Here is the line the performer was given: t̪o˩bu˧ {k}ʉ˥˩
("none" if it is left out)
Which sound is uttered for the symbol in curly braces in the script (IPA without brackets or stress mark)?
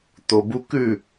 k